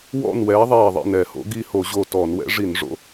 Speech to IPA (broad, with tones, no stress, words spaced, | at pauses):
wɔ̰˥˨nwɛː˨˥ ðˤɛː˧˩ðˤḭ˧˩nɛ˧˩˧ho̰˨˥ɡ i˥˨ho˧˩˧ʑo˧˩ tɔː˧˩˧nwɛ̰˨˥ ʐi˧˩˧n ʐo̰˨˥